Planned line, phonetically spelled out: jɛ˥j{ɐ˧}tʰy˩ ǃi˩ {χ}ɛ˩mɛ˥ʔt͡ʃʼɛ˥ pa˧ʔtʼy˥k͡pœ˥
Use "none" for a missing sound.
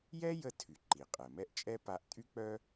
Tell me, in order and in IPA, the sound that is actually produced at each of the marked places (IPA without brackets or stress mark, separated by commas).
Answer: ə˧, qʼ